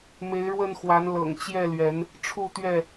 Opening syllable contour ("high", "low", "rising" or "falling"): rising